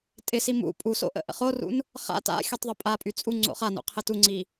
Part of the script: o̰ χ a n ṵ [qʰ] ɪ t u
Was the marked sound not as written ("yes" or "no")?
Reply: no